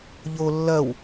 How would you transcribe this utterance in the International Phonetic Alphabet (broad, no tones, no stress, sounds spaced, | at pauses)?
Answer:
ʎ o lː ɐ w